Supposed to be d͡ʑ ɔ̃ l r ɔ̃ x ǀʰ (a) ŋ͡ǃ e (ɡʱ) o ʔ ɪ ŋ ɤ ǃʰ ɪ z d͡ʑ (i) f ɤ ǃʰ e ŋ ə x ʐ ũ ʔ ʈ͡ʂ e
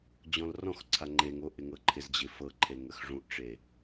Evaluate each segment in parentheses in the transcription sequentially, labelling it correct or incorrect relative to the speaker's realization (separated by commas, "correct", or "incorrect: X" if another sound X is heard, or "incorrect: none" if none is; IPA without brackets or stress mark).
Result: correct, incorrect: ŋ, incorrect: ɪ